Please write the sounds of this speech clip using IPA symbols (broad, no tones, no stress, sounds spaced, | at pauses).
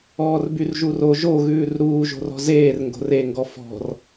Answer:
ɔː r b y r ʒ u r o ʒ o ɣ ʉː r ɾ uː ʒ o̤ r ɔ̤ z eː r ŋ ɡ o̤ r e ŋ ɡ ɔ f ɔ̤ r